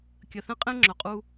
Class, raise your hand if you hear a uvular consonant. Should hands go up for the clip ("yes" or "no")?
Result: yes